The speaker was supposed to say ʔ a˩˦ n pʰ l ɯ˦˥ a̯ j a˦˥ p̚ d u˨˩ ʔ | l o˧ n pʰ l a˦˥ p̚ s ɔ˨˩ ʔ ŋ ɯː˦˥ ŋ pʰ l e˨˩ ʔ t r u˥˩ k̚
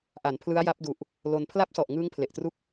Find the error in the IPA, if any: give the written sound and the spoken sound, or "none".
none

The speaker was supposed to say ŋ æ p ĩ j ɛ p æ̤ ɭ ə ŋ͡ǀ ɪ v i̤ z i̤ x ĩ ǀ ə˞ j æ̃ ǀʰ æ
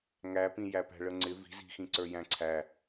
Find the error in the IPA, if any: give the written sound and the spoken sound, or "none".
ɛ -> æ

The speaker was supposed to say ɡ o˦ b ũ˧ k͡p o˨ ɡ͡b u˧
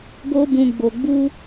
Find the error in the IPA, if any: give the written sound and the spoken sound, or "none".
k͡p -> ɡ͡b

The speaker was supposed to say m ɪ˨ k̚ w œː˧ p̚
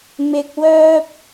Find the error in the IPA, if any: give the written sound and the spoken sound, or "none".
none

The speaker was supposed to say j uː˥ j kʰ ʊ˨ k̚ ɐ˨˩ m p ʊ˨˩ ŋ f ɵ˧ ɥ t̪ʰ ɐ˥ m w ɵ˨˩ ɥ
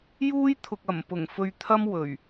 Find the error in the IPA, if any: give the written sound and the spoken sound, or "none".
kʰ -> t̪ʰ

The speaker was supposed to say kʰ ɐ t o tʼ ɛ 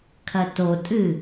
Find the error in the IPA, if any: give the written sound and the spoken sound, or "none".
ɛ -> ɨ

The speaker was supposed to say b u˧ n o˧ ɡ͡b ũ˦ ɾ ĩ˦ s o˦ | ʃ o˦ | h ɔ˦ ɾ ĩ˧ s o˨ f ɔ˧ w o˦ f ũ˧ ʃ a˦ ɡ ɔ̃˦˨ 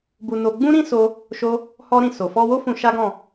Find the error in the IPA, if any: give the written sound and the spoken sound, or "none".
none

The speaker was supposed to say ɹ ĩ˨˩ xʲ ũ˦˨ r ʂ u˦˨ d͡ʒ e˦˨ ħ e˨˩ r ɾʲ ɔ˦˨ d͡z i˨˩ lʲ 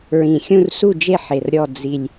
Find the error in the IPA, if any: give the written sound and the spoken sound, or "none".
ʂ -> s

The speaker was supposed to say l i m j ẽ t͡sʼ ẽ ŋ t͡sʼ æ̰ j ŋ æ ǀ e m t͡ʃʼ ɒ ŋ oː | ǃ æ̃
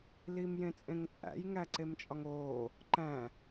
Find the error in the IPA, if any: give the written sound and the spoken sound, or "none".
none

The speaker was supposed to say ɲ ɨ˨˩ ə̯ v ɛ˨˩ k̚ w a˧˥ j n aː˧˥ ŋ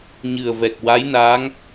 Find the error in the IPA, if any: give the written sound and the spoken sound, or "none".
none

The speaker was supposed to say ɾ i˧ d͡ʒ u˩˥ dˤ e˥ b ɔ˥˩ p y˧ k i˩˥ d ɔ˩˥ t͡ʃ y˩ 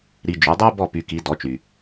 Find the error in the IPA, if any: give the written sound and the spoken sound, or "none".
none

